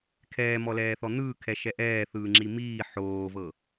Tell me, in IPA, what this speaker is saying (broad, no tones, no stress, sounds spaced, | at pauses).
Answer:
kʰ ɛː m ɔ l ɛː θ ɔ n̪ ɯː kʰ ɛ ʃ ɛ ʔ ɛː θ ɯː ŋ͡ǁ i m iː ħ oː v ɤ